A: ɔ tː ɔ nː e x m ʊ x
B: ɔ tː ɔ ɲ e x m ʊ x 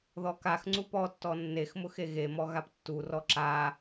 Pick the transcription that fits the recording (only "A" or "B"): A